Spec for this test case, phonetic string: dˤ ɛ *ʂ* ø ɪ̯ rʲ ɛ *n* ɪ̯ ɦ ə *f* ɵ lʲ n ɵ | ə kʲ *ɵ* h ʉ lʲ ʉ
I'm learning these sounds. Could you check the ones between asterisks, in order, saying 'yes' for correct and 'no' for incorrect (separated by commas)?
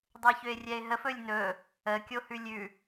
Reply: no, no, yes, no